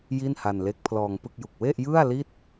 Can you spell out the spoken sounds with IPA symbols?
j i˥˩ n h a˧ n l e˦˥ k̚ pʰ l ɔː˧ ŋ p ɯ˥˩ k̚ j u˨˩ k̚ w e˥˩ ʔ j ɯ˥˩ a̯ l i˥˩ t̚

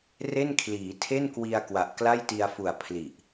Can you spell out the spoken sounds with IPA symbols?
r e˥˩ n kʰ l iː˩˦ tʰ e˥˩ n k w i˧ a̯ k w a˨˩ ʔ k l a˥˩ j t i˧ a̯ f u˨˩ a̯ pʰ l i˨˩ ʔ

